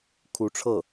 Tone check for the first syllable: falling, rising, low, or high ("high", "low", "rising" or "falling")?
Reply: rising